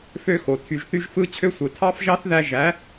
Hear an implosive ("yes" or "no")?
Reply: no